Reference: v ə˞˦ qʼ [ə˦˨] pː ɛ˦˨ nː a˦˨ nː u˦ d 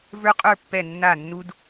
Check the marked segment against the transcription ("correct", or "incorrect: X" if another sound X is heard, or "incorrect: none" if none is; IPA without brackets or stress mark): incorrect: ə˞˦˨